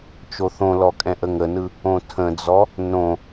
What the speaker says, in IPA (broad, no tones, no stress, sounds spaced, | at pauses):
t͡ʃ o θ õ l ɔ kʼ ɛ̃ ʔ ə ŋ ə n ɯ | õ tʰ ə̃ d͡z ɔ | n õ